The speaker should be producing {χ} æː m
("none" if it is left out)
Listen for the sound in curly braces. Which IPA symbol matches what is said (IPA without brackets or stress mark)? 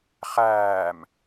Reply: χ